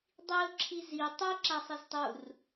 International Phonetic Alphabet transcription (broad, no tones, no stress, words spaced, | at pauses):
dˤiʊ̯ǁʰi zi tˤu ǁasˤiztˤur